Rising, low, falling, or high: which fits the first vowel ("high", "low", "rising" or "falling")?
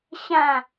falling